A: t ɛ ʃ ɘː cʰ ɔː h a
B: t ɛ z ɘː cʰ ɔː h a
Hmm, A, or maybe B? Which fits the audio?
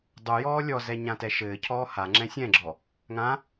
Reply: A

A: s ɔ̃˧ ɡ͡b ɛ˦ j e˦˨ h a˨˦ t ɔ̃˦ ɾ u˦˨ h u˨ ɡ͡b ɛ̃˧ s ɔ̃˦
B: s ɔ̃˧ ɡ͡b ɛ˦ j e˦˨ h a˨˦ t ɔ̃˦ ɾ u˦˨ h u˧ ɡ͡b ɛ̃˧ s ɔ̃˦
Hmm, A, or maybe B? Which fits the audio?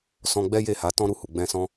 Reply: A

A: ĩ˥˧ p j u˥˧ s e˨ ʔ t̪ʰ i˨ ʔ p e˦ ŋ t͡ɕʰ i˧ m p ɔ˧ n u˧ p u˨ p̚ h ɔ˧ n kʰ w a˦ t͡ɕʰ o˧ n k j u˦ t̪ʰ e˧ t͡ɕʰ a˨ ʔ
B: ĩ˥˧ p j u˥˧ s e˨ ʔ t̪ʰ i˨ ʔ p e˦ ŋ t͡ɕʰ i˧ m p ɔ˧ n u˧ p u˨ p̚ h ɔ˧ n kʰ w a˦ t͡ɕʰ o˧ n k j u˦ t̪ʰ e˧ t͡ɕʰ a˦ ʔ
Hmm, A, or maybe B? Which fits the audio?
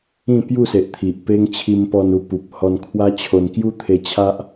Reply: B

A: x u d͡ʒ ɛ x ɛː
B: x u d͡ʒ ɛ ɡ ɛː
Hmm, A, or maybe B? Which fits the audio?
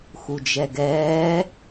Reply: B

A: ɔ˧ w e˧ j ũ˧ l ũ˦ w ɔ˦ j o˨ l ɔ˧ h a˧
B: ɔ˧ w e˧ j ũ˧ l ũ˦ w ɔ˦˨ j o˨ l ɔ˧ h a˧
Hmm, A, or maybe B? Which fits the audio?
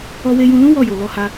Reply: B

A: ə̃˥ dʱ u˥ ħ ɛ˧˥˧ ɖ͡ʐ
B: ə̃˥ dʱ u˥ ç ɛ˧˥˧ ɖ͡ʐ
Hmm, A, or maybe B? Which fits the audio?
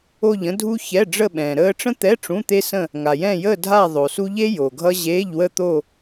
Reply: B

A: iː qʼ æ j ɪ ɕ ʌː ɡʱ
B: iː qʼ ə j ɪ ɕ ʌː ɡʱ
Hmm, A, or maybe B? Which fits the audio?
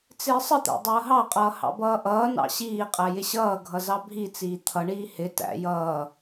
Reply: A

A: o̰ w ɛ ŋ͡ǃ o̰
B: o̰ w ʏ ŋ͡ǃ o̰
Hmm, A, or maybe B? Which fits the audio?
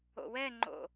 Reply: A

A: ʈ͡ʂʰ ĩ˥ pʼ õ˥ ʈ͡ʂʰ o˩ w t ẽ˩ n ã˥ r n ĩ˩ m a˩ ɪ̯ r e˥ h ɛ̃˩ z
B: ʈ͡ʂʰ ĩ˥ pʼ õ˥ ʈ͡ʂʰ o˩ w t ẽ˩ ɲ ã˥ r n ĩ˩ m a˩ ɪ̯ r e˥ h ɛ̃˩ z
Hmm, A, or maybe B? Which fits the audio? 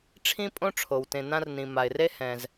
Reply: A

